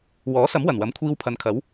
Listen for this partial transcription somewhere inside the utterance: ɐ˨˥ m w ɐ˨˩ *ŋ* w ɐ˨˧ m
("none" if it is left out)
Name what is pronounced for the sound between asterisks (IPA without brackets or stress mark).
n